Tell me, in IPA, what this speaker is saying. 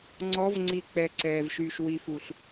ŋ͡ǀ ɔ˨˦ v ŋ͡ǀ i˨ k͡p ɛ˨ ǀ ɛː˨ v ʃ yː˨ ʃ w i˨ f u˨ ɬ

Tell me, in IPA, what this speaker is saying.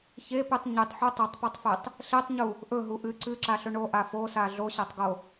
ç e p ɨ tˤ ɲ ɨ tˤ ħ u tˤ e tˤ p u tˤ f e tˤ | ɬ e tˤ ɲ u | ʔ ɵ ɦ u ʔ ɨ ǀ ɨ ǁ a ɬ ɵ ɳ o ʔ a f o s a ɮ o ɕ a tˤ ɡ o

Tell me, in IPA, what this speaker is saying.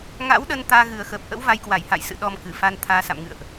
ŋ a̰˧˥ w ɗ ə˧ n t̪ aː˧ ɣ ɨ˨˩ ə̯ x əː˨˩ p̚ ʔ ə̰˧˥ w v a˧ j k w a˧˩ j h a̰˧˨ j s ɨ̰˧˨ ɗ ɔ˧ m k ɨ˧˩ f a˧ n t̪ʰ aː˨˦ s a̰˧˨ m ŋ ɨ̰˧˨ ə̯ ʔ

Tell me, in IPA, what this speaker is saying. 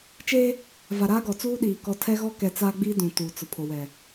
t͡ʃ eː˦ | v a˨ ɾ aː˦ ɡ ɔ˨ t͡s uː˦ ɗ iː˨ k ɔ˨ tʰ ɛ˦ ɣ ɔ˦ k ɛ˨ t͡s aː˦ ɡ͡b i˦ d ũ˨ t uː˨ t͡s ʊ˨ pʰ o˨ w ɛ˨

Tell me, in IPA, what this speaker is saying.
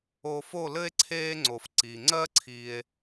o˧ f o˦˨ l ɘ˦ e̯ ǀʰ eː˦ ŋ͡ǀ o˧ f ǀ iː˨ ŋ͡ǀ ɜ˦ ǀʰ iː˧ e̯

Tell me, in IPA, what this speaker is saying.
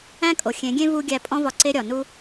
æ̃˦ kʼ o˨ xʲ ẽ˨˦ ɡʲ ẽ˦ v u˧ ɡʲ æ˦ pʼ ɔ̃˦ v ɒ˧ ǀ e˦ ɾʲ ɒ˨ n u˦

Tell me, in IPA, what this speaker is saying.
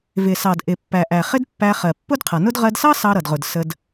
v ɪ˩ s ɑ˩ d ʔ ɪ˩ pː æ˩ ʔ æ˩ χ ɪ˥ d pː æ˧ χ ɜ˩ pː ʊ˥ d qʰ ʌ˩ n ʊ˥ d ʁ ɜ˧ d s ɑ˥ s ɑ˧ ɾ ʌ˩ d ʁ ʊ˩ d s ə˧ d

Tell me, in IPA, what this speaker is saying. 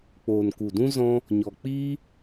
k͡p oː˨ n k u˨ d ũ˦ z ɔ̃˦ | ɲ ɔ˨ k͡p iː˦

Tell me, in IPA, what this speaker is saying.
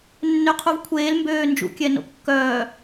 nː ø qʰ u v kʷʰ eː l m b øː n d͡ʒ ṵ kʲ ɛ n o̰ kː œː

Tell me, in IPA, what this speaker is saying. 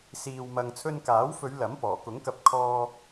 s iː˨ w m ɐ˨ ŋ t͡sʰ ɵ˧ n k aː˨˥ w f ɵ˨˧ ɥ l ɐ˨˥ m p ɔː˨˩ k ʊ˨˥ ŋ k ɐ˧ p̚ kʰ ɔː˧

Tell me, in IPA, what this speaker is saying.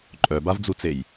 ǃʼ œ b a v d͡z u t͡s e j

